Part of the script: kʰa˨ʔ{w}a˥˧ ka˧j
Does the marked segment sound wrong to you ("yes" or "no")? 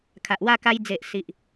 no